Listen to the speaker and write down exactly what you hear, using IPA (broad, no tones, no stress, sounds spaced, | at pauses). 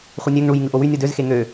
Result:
χʷ ɯ nʲ ø ŋ ɳ u j ŋ ɯ ʔ o w y nʲ u d ø z x e ŋ ø